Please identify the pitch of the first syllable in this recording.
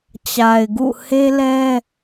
low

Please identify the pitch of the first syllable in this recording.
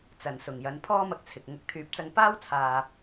low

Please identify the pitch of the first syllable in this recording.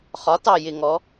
rising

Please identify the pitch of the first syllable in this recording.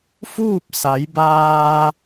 falling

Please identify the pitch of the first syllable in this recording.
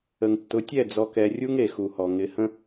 low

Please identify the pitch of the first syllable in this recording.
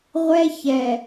high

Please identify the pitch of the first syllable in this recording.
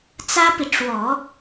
high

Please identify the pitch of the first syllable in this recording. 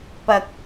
low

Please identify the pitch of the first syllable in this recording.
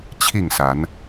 falling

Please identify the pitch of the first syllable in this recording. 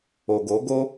low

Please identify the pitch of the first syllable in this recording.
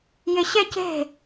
high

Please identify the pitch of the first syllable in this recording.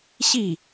falling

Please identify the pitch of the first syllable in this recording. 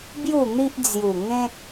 falling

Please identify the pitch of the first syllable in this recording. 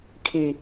low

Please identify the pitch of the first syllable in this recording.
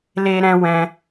high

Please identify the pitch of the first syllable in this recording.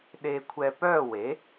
high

